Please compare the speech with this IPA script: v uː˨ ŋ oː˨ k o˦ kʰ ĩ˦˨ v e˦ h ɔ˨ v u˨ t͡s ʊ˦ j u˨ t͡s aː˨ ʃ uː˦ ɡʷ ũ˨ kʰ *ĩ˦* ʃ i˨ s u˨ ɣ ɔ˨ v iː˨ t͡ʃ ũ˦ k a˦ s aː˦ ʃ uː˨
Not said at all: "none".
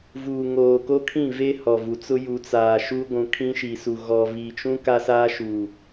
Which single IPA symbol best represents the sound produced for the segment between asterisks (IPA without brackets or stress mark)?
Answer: ĩ˦